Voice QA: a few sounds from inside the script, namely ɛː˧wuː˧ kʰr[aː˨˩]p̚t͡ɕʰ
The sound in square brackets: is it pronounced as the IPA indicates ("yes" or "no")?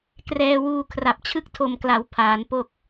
no